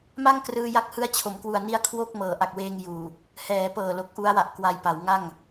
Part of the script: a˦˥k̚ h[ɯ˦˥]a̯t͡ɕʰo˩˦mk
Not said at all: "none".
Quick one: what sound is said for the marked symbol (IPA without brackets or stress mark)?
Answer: ɯ˦˥